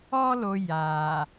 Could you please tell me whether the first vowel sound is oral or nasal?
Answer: oral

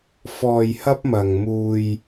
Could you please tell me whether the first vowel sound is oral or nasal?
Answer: oral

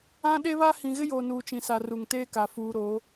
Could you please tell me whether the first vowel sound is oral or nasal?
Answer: nasal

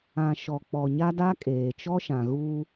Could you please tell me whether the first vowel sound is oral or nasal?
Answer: nasal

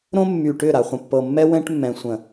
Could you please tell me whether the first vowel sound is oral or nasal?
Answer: nasal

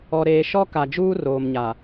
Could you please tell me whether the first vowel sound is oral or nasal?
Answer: oral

